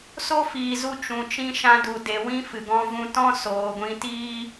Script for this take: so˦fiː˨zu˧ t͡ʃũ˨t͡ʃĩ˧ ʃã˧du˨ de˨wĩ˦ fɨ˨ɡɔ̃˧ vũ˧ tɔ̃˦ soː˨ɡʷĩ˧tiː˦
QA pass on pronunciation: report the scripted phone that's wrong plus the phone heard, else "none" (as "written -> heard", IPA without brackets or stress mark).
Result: none